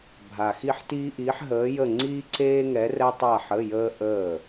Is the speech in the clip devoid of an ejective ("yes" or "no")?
yes